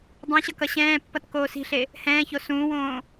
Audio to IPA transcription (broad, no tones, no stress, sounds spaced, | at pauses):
dˤ ĩ ɕ ʌ k ʌ ɕ ɛ̃ː pː ʌ t k oː s i̤ ɬ e | h ɛ̃ː ç o s ũː w õː